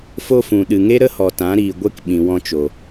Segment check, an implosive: present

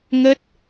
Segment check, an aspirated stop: absent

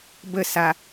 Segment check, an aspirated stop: absent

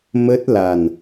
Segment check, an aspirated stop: absent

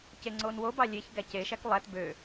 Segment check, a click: present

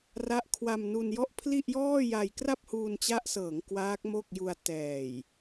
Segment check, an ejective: absent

